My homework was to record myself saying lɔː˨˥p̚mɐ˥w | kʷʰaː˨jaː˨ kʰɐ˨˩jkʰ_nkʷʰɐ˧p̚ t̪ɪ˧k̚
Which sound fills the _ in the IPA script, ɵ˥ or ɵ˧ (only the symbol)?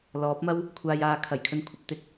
ɵ˧